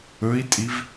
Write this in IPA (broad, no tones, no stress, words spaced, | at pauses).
ɵi̯tʼiv